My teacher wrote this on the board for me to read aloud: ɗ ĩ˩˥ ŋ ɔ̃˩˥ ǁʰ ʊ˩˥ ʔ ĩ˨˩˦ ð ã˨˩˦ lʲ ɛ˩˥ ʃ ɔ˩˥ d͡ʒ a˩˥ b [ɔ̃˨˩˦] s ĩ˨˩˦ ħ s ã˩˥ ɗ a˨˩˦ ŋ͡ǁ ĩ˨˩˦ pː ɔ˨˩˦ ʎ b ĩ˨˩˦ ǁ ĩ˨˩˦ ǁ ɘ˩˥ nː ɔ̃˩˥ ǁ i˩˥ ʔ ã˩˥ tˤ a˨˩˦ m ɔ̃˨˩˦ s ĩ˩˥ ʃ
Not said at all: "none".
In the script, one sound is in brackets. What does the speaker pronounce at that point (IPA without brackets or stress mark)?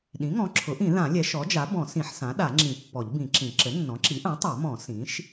ɔ̃˨˩˦